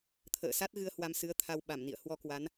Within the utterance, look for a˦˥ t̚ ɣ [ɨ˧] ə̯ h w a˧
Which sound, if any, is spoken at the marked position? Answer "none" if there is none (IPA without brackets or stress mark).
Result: ɨ˧